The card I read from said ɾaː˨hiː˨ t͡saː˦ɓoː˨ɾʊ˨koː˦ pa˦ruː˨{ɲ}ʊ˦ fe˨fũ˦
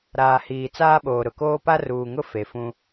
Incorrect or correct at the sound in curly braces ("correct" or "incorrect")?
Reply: incorrect